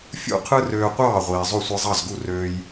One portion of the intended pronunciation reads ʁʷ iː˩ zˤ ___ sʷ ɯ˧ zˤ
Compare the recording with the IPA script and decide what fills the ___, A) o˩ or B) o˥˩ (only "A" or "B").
B